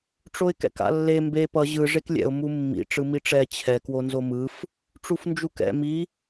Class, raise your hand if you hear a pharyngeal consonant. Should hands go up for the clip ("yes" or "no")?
no